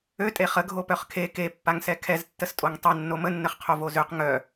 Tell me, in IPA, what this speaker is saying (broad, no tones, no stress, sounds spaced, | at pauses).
ø tʼ e χ ə ɡʱ o p œ χ kʰ e k e pː a ŋ s ɛ kʰ ɛ z tː ə s tʼ o ŋ tˤ ɛ nː o m ə nː ə χ qʰ o v o z ø q ŋ œ